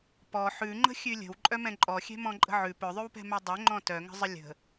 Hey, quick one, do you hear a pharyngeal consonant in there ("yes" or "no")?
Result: yes